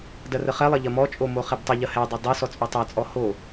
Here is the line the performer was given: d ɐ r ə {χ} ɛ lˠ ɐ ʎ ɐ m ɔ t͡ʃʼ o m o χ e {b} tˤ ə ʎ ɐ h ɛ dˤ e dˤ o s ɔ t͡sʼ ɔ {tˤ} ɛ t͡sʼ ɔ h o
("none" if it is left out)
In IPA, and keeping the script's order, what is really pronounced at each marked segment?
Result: χ, b, tˤ

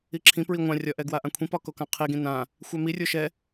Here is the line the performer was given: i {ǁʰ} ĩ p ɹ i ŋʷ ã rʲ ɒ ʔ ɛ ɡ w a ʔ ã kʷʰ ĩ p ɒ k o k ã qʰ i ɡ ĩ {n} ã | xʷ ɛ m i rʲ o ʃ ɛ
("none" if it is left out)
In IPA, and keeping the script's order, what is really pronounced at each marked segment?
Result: ǁʰ, n

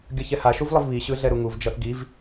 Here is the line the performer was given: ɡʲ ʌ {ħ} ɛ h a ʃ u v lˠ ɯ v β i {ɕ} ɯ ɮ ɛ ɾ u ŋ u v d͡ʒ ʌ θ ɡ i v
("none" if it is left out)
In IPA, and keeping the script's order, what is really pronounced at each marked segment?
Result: ç, ɕ

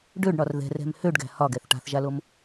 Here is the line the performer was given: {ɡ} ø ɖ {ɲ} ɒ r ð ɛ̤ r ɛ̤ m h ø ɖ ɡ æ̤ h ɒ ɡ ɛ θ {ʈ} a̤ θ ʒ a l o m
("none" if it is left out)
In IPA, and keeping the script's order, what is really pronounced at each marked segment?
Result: ɖ, ɳ, ʈ

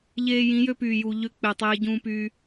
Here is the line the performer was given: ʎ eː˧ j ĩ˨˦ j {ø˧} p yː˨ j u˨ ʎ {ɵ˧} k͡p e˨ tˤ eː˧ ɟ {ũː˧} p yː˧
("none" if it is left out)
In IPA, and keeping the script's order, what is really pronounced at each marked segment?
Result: ø˧, ø˧, ũː˧

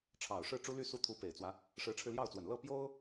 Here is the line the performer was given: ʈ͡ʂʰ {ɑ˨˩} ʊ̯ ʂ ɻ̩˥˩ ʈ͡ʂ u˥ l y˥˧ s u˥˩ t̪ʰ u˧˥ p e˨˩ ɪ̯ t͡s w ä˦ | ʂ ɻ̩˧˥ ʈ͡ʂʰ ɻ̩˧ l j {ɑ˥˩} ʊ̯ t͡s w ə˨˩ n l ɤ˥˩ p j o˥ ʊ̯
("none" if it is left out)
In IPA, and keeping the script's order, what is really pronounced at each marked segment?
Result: ɑ˨˩, ɑ˥˩

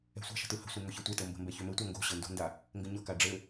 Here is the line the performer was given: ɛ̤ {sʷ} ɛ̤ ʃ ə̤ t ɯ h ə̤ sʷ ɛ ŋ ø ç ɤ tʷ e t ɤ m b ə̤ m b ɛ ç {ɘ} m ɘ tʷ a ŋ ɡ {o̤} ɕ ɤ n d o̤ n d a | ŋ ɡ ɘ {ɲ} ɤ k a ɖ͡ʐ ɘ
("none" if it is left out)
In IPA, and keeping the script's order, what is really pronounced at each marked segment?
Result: sʷ, ø, o̤, ɲ

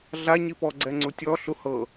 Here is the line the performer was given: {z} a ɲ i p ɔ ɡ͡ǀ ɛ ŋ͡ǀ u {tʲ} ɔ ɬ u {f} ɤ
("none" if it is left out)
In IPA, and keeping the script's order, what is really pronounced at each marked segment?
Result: ɮ, tʲ, h

